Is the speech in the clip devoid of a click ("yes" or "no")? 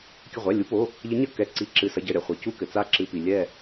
no